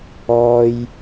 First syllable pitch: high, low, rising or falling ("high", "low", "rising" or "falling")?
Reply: low